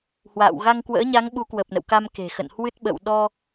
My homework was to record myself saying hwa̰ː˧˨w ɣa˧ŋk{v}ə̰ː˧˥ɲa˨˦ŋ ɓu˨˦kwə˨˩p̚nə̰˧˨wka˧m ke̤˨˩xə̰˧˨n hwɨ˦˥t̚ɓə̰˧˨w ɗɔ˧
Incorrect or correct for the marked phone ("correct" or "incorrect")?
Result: incorrect